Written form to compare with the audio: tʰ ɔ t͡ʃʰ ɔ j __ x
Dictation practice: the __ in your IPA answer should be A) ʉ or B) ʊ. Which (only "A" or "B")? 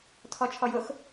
B